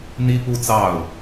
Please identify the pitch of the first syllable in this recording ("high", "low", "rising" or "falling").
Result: high